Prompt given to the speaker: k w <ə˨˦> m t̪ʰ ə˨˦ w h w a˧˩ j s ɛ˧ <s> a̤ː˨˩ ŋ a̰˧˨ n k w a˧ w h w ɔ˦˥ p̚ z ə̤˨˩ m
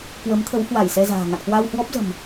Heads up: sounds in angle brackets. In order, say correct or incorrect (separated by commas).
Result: correct, incorrect